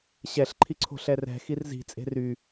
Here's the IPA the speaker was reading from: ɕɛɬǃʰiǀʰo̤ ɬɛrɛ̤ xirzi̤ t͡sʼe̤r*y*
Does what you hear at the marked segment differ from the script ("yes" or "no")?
no